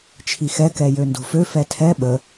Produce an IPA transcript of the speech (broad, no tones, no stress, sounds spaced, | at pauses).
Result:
t͡ʃʰ i x ɛ k ɛ j ø n d o̤ f ø f ɛ tʰ ɛ ɓ ə